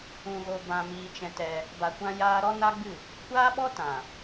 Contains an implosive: yes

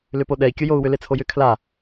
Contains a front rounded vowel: yes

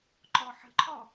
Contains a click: yes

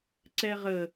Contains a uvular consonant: yes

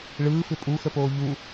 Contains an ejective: yes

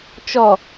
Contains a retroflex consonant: no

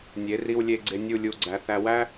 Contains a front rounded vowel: no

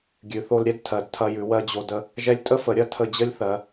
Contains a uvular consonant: no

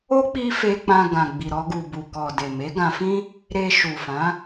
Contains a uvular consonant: no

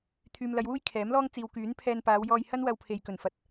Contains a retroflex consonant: no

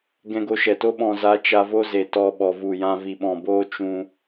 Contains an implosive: yes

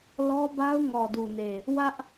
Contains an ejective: no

